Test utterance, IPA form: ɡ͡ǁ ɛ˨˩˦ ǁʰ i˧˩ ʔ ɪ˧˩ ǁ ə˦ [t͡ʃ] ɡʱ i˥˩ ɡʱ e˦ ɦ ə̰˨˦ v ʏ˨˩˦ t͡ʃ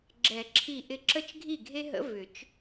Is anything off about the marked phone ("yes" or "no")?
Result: no